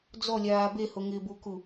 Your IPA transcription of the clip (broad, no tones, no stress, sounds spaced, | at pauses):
d͡z ɔ lʲ aː b e h o ŋ ɪː b u k u